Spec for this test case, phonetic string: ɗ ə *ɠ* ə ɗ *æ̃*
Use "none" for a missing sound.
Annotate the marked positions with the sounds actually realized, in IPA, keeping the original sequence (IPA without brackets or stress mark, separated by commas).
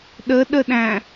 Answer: ɗ, æ̃